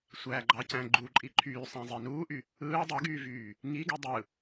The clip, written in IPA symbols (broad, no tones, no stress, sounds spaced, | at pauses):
sʷ æ ɡ͡ǃ ɑ c æ̃ ɡ͡ǃ u ǃʼ i ǃʰ yː sˤ æ̃ zˤ i n uː ʔ y | ɯː dˤ y ɡ yː v yː | ŋ i ɡ y dˤ ɯ